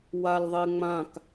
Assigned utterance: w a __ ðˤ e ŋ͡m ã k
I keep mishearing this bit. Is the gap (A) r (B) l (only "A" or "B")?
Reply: B